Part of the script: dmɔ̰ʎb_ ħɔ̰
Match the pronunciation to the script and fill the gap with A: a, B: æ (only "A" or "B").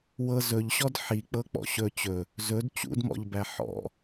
B